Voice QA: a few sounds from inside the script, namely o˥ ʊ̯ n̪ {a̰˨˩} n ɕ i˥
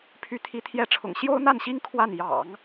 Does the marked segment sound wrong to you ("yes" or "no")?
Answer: yes